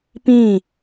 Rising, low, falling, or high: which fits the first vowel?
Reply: falling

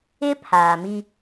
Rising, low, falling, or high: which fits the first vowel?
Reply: high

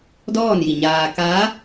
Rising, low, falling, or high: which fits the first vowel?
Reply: falling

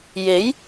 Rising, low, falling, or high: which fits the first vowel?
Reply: rising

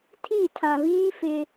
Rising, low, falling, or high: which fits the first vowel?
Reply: falling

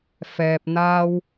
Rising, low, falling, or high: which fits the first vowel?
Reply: low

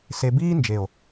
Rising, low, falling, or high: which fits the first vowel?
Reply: low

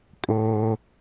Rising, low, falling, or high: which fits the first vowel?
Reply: high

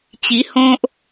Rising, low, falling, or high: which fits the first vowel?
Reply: rising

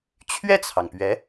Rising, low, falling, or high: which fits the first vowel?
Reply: falling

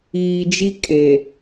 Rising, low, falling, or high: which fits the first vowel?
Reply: low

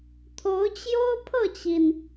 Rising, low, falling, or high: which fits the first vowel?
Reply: rising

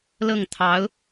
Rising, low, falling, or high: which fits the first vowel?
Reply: falling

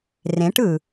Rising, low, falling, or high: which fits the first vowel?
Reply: rising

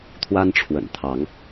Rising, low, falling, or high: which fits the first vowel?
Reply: high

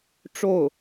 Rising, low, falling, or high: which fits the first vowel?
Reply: falling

